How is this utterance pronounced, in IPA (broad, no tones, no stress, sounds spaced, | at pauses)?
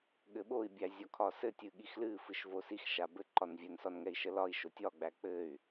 ɠ ɘ ɓ o i̯ bʲ æ zʲ ɒ kʰ ɒ s ɘ tʲ ɨ ɠ i x l ɨ f ɨ ʃ v o s i x ʃ a b ɘ ǃ ɒ n vʲ ɛ n s ɒ n ŋ ɛ i̯ ʃ ə l ɒ i̯ ʃ o tʲ ɒ ɡ͡b æ k͡p ɘ y̯